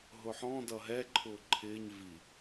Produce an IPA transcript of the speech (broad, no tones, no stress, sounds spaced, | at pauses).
ɦ ʊ ħ ɔ̃ d ʌ ɦ ɛ ǃʰ ʊː ǃʰ ɪː ɲ v i